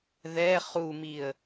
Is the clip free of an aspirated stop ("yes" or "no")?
yes